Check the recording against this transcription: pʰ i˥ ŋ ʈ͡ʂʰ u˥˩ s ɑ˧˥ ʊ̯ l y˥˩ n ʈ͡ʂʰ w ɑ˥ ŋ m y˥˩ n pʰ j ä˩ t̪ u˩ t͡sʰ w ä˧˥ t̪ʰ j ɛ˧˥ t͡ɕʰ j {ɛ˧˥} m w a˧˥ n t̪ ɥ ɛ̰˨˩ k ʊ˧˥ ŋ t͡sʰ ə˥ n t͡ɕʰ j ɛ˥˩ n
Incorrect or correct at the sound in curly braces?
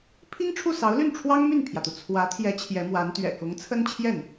correct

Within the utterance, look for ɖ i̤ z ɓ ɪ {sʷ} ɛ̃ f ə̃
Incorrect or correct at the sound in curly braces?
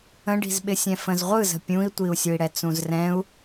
incorrect: sʲ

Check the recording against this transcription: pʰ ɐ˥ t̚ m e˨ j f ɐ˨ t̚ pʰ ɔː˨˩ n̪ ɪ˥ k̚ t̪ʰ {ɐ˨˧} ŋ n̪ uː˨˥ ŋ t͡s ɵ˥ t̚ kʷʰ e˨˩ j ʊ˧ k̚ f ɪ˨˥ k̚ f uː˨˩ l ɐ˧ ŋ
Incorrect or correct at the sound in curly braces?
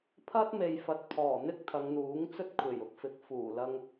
correct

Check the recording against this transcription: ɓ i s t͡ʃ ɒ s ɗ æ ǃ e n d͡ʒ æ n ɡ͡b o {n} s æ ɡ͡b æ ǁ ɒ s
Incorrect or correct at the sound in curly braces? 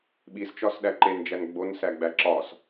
correct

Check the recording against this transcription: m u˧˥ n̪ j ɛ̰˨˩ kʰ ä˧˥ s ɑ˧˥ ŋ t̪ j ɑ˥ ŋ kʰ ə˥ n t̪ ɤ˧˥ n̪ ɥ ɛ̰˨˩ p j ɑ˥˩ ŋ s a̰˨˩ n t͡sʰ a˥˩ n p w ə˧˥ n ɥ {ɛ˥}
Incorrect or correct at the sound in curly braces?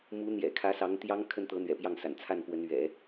incorrect: ɛ̰˨˩˦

